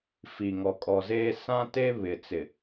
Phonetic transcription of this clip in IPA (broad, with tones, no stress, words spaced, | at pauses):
fi˨ŋɔ˨kʼɔ˨zeː˦ sã˦te˦ βɪ˨t͡sɪ˨